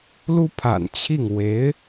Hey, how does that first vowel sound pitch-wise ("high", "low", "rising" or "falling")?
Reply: high